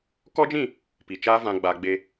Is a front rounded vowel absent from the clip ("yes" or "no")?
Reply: yes